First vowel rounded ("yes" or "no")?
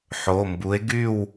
yes